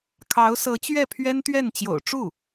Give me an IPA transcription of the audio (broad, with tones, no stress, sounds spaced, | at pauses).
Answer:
kʰ ɑ˧˥ ʊ̯ s ɤ˧˥ t͡ɕ ɥ ɛ˥˩ pʰ ɥ ɛ˥ n t̪ ɥ ɛ˥˩ n t͡ɕ j o̰˨˩ ʊ̯ ʈ͡ʂ u˥˩